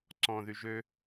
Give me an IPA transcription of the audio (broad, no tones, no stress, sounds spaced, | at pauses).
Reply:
ǀ ɔ̃ ð y ʒ ø